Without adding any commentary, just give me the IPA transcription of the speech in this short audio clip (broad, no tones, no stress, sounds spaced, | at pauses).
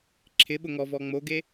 ǁʰ ɪ ɓ ʊ ŋ ɔ v ɔ ŋ͡m o ɡ e